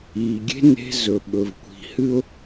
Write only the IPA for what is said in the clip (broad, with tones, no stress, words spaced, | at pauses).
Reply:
iː˨ɡʲe̤˦ ne̤˦zɵ˨ ɓɵ˨v kʷi̤˨hɨ˦ʊ̯